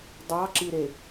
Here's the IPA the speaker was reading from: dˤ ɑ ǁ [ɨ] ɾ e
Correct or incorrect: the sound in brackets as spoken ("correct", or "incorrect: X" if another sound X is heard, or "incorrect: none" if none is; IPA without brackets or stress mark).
incorrect: i